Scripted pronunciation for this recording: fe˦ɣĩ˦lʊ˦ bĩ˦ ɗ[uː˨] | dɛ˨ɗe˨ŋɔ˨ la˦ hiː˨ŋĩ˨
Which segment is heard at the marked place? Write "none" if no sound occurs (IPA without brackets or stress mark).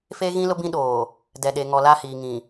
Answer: oː˨